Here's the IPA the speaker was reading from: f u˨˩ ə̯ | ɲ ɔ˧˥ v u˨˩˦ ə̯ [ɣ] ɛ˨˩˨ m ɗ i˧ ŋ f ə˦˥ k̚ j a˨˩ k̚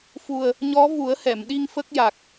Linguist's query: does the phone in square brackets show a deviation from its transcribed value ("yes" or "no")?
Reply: yes